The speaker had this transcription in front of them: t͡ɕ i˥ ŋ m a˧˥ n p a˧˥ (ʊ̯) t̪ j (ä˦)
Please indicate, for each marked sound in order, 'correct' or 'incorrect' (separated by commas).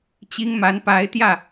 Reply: incorrect, incorrect